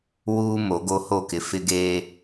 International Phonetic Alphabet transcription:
w uː˦ m o˨˦ ɡ o˦ h o˦˨ k ɪ˨ f ɪ˦ ɡ eː˦

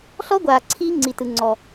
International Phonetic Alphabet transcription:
ɬ ɔ˦ ɡʷ aː˨ ǀʰ iː˦ ŋ͡ǀ i˨ t ɯ˨ ŋ͡ǀ ɔ˨

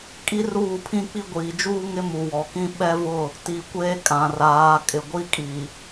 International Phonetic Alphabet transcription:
kʼ i˦ r uː˦˨ pʰ ĩ˦ k͡p i˦ ɡʷ iː˨ d͡ʒ uː˦ ŋ ɪ˦ m u˨ w ɔ˨ k ĩ˦ ɓ ɛ˦ v ʊ˦˨ | t i˨ kʷ eː˦ kʼ ã˨ r aː˨˦ kʼ ɪ˨ ɡʷ i˦ kʼ i˨

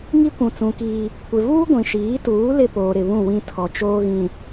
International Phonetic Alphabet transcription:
ŋ i˦ kʷ ũ˨ t͡s ũ˨ k iː˦ | kʷ ɪ˨ v uː˦ ɡʷ ĩ˨ ʃ iː˨˦ t uː˨˦ l ɪ˦ p oː˨ ɾ ɪ˨ β ũ˦˨ w ĩ˦ tʰ ɔ˨ t͡ʃ oː˦ ɣ ĩ˨

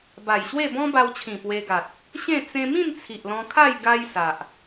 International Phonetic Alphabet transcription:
b a˨˩ j ɕ w e˥˧ b ɔ̃˦ b a˧ w t͡ɕʰ ĩ˨˩ p w e˧ ɡ a˨ t̚ | ɕ ẽ˥˧ t͡s ẽ˧ m ĩ˥˧ n t͡sʰ i˨ ʔ l ɔ̃˧ kʰ a˥˧ j ɡ a˦ j s a˨ ʔ

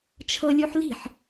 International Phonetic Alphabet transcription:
t͡ʃʰ ɤ lʲ u ħ l i̤ ħ

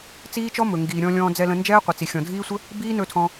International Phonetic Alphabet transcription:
t͡s iː˦ t͡ʃ ɔ˦ m ɵ˨ ŋ ɡ iː˨ ɾʲ ɔ̃˧ lʲ ɔ̃ː˧ d͡z ɛ˧ l ə̃˧ n d͡ʒ ɛː˦ qʷ ə˨ t͡s i˨ xʲ ɔ̃˨ dʱ iː˦ sʷ ə˦ | b iː˦ n ɵ˧ tʰ ɔ̃˧

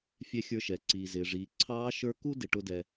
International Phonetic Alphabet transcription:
fʲ ɛ˧˥ xʲ ə˞˧ ʃ ɛ˩ ǀ iː˩ z ɪː˩ ʐ iː˩˧ ǀʰ ɑː˧˥ ʃ ə˞˧˥ k u˥ d ɪ˧ ʈ ʊ˥ d ɛ˧

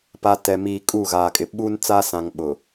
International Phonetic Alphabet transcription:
p a˨ t ɛ˨ m iː˨ kʼ uː˦˨ ɣ aː˨ kʼ ɪ˨ ɓ uː˦ n t͡s aː˦ s ã˨ ŋ ɓ ʊ˨

